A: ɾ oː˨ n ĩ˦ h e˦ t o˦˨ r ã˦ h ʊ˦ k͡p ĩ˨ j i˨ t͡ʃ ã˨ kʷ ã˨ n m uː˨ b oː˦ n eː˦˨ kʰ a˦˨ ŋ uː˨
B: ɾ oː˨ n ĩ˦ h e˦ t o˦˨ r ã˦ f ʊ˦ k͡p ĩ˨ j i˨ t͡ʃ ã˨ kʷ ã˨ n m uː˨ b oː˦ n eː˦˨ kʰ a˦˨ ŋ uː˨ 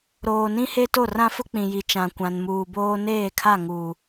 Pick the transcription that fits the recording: B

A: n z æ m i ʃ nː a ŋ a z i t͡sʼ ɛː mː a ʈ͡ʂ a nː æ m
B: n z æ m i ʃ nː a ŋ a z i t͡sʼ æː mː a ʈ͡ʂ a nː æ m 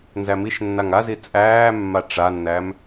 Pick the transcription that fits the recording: B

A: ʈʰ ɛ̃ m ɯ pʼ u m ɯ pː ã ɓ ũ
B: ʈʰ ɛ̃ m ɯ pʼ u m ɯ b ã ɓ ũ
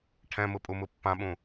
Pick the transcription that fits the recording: A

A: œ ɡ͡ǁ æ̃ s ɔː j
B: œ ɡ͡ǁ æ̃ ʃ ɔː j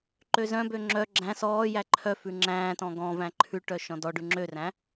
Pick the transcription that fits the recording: A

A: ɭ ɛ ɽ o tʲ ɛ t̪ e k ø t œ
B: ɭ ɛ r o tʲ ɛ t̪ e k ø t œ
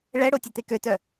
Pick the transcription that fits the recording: A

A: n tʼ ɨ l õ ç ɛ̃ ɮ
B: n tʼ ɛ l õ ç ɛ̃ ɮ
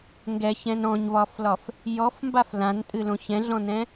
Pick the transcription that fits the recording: A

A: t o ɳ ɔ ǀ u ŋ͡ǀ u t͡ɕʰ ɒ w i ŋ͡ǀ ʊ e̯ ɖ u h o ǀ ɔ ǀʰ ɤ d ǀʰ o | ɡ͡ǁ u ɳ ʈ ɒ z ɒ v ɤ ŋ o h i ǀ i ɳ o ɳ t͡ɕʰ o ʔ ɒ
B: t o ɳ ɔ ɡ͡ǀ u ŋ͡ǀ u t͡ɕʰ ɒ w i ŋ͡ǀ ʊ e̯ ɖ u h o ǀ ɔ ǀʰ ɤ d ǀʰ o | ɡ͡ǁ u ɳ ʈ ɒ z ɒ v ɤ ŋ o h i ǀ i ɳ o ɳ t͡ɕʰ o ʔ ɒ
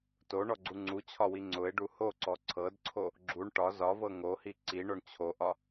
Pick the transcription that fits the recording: B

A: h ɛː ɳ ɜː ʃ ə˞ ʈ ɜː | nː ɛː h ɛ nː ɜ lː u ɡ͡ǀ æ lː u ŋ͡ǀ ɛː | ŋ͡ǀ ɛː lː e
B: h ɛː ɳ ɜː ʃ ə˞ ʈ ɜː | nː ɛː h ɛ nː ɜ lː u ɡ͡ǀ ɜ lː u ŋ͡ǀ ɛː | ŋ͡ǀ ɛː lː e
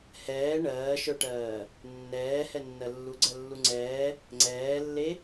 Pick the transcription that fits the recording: B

